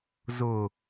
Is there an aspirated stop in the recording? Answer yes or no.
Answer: no